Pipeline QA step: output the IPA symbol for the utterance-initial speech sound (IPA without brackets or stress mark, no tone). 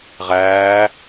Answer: ʁ